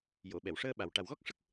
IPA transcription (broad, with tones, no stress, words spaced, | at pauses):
jo˨˩˨ɓɛ˨˩˨wʂəː˧ ɓa˨˩w ʈa˨˩wɣɔ˦˥k̚ʂə˦˥k̚